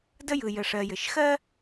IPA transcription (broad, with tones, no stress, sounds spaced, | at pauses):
d ə˦ j ɯ˨ j ə˨ ʂ ɜ˨ j ɘ˨ ʃ x ɜ˥